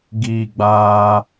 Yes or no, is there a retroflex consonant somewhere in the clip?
no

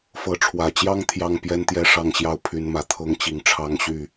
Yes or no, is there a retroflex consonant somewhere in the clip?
yes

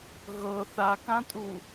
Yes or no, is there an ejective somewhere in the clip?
yes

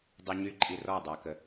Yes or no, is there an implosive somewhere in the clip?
no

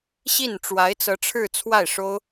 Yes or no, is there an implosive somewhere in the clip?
no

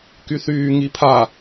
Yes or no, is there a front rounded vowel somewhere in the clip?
yes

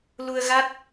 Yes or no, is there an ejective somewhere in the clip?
no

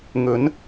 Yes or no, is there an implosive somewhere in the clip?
no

